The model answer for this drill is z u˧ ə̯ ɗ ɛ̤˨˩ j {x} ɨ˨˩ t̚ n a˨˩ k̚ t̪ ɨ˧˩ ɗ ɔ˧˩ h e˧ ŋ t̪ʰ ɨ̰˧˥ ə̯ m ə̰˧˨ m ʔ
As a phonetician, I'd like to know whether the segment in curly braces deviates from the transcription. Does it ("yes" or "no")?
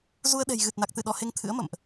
yes